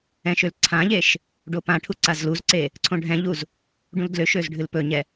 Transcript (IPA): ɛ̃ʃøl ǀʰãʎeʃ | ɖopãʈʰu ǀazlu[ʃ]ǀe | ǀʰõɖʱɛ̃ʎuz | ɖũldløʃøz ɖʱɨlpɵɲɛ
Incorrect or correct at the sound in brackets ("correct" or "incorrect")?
incorrect